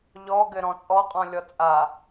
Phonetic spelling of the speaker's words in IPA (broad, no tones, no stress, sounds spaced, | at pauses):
ʎ ɔ ɡ ɘ ɾ ɔ̃ t͡sʼ ɔ qʼ ɔ̃ lʲ ɔ t͡sʼ a